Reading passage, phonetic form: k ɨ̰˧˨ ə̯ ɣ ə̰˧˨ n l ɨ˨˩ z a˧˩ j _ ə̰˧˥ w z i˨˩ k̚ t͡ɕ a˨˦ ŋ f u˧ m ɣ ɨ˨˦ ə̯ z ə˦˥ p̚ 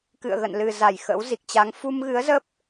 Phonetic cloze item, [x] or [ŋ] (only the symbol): x